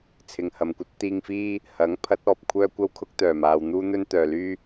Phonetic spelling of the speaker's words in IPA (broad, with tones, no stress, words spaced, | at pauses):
t͡sʰɪ˨ŋhɐ˨mkʷɐ˥t̚ t̪iː˧ŋfiː˥ | hɐ˨˥ŋ pʰɐ˨˥t̚ɔː˨p̚kʷʰœː˥ kʷɐ˥wkʰʊ˥k̚t̪œː˨˩maː˨w n̪uː˥ n̪ɵ˥nt̪œː˨ lyː˥